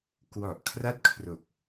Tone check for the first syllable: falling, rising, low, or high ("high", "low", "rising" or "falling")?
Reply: low